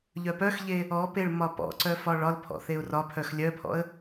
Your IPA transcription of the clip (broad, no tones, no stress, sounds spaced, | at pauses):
ʎ œ p œ x ʎ e | ɔ p e ɭ m ɒ p ɔ̰ ǀ œ f ɒ ɭ ɒ l pʰ ɔ̰ θ e ʊ̯ r ɒ pʰ œ x lʲ œ pʰ ɔ̰ ə̯